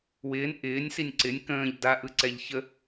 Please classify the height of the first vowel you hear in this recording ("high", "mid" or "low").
high